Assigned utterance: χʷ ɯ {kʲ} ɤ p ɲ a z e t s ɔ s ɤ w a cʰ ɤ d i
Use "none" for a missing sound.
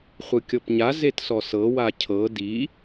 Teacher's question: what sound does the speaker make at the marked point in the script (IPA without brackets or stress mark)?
kʲ